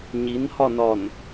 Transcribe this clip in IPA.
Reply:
ɲ i n h ɒ n ɒ n

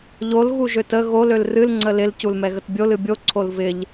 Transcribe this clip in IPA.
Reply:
ʎ o l ɣ u ʒ ø t ə ɣ o l ø l r ɨ l ŋ͡ǀ ə l ɪ l c u l m ɛ ɣ ə t bʲ o l ɨ bʲ o ǀʰ o l v ɪ ʎ

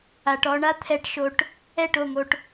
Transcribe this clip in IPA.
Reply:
a˨ ʈ ɔ˧ ɳ a˦ t̪ʰ ɛ˧ ʈ ʃ o˧ ʈ | ɛ˦˨ ʈ o˦˨ ŋ o˧ ʈ

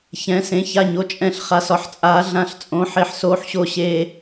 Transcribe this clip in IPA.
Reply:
ç ɛ̃˩˧ s ẽ˩˧ ç a˨˩ ɲ o˩˧ t͡ʃʼ ɛ̃˨˩ ɬ χ a˩˧ s ɒ˩˧ ħ t͡sʼ aː˩˧ ɮ ã˨˩ ɬ t͡sʼ õ˩˧ ħ e˨˩ ħ s oː˩˧ ħ ɕ o˨˩ ɕ eː˨˩

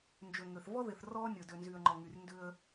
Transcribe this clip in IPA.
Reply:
n d͡ʒ ø˨ ŋ ø˨ θ v ɔ˦ ð ɪ˨ θ r ɔː˦ nʲ ʊ˨ d ø˨ n z y˨ ə̯ ŋ͡ǃ ɔ˨ ŋ y˨ r n d ʏ˦ ə̯

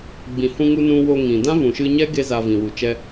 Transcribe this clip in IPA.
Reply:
ɡ͡b ĩ˨ h ũ˧ ŋ u˧ n ũ˧ w o˧ ŋ ĩ˨ d ã˦ v ũ˨ ʃ ɨ˧ ɲ ɛ˦ ɡ e˦ z a˧ v ĩ˨ w u˨ t͡ʃ ɛ˧

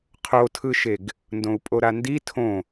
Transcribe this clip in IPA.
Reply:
qʰ o tʰ ɯ ʃ e ɡ | n d õ u̯ pʼ o ɾ a n d i tʰ õ

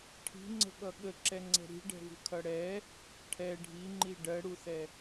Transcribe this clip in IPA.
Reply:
ʈʰ i̤ ŋ͡ǀ ə̤ ɠ ʌ ɠ ə ǁ ɛ ŋ͡ǀ ɛ̤ ɾ i̤ ɖ ɛ̤ v ṳ kʰ ʌ ɽ ɛ | ʈʰ ɛ ɖʱ i ŋ͡ǃ i ɖ ɜ ɽ u θ ɛ

